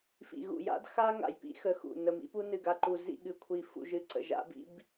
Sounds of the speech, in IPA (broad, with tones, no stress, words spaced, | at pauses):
fḭ˨ɣṵ˨ja̰˦d xa˦ ŋa̰˨jpḭ˦xə˨xṵ˨ nə˨mḭ˦pu˦nɨ˨ ɡa˨ǃu˨ zḭ˦˨ɠɨ˨kʷʰi˨ fṵ˨ʒɨ˨ ǀə̰˨ʒa̰˦bḭ˦b